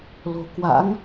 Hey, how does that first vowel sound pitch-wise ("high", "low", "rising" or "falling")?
low